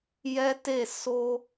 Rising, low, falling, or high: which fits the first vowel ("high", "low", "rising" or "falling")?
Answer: high